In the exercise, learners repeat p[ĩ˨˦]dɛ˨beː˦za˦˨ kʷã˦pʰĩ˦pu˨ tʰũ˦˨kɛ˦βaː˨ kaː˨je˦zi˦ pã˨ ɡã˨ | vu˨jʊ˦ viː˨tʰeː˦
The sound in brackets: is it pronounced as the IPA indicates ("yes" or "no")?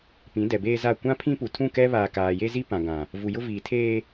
yes